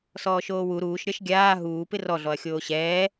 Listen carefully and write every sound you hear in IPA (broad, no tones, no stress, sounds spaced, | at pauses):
s ɔː ʃ oː w u ɾ uː ʃ ɾʲ ɒ ʃ ɡʲ aː ɦ uː p ɪ r ɔ ɮ ɔ ɐ̯ xʲ oː ɕ ɛː